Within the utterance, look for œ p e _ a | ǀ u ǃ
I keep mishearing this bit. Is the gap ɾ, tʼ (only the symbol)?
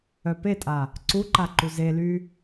tʼ